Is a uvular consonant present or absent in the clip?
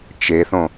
absent